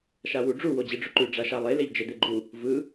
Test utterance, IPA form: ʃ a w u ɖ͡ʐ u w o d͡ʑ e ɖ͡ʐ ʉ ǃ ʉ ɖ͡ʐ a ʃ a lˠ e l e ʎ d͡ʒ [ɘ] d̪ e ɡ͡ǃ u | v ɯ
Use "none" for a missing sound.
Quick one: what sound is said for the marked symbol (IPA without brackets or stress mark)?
ɘ